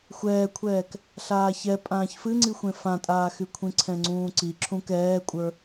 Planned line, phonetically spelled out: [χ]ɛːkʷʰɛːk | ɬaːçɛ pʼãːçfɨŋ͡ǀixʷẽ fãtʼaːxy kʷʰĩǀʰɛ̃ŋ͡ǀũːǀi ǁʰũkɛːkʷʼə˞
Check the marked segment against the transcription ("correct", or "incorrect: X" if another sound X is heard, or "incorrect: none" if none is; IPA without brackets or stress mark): incorrect: xʷ